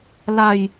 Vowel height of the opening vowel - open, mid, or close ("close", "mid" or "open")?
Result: open